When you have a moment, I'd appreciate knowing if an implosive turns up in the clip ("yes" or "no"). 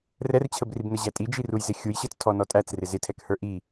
no